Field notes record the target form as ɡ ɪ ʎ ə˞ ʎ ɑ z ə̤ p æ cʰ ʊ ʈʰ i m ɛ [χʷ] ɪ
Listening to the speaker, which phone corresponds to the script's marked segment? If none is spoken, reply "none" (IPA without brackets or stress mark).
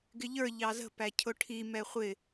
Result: χʷ